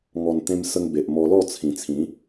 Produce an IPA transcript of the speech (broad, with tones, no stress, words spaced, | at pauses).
ŋɔ˨˩nt̪ẽ˧msə˧ŋ be˨ʔmɔ˧lɔ˥˧ t͡sʰĩ˨˩t͡sʰĩ˨˦